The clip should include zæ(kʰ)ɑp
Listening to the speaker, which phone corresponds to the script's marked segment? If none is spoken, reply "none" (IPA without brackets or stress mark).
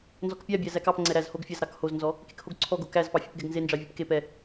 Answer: k